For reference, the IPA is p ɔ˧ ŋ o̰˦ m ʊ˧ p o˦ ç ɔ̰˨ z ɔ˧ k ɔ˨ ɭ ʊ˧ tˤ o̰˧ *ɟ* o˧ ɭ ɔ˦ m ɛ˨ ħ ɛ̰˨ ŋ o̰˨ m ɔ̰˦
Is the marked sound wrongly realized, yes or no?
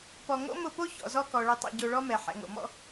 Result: no